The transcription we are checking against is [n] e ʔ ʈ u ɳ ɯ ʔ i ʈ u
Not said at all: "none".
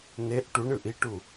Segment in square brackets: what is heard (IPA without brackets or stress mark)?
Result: n